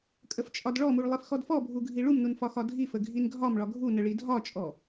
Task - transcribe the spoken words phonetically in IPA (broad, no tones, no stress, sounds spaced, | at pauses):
kʼ ə f t͡ʃʼ ɒ d ɭ ɔ m u ɭ lˠ i f x ɔ d f ɔ bʱ u ɡʱ i ɭ u m n u n f ɒ x ɒ dʱ i f ə ɡʱ i n ɡʱ ɒ m ɭ ɒ ɡʱ u n ə ɭ i dʱ ɒ t͡ʃʼ ɔ